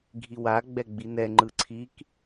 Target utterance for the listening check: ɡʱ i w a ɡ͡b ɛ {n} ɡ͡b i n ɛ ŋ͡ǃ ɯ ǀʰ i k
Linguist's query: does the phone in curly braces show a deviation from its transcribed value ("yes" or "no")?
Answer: yes